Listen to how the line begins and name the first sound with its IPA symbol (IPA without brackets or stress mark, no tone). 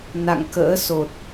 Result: n